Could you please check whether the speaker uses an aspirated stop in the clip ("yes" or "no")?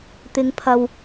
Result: yes